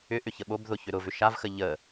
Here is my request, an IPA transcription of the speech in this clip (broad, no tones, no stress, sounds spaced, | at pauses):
ʏ ʔ ʏ ç ə ɓ o b ð ʊ ç ʏ ɾ ʊ v ʏ ʃ a v x ə ʎ ə